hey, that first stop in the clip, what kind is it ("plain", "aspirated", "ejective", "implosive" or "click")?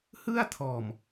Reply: aspirated